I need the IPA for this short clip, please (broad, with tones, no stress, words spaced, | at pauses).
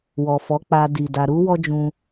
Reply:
wɔ˨fɔ˨˦k͡pa˧ di˨da˧ ɾu˦ wɔ˦d͡ʒũ˧